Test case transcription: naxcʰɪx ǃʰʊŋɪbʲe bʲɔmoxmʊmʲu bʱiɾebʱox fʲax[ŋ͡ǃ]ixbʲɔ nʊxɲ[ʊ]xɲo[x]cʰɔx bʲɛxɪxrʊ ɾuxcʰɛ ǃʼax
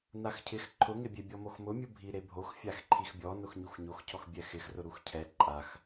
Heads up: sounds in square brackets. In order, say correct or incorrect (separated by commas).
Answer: incorrect, incorrect, correct